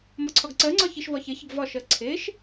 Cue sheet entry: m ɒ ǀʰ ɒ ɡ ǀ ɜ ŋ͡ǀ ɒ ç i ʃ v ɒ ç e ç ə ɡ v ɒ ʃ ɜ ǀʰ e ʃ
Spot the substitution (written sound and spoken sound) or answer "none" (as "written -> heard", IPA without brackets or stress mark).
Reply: none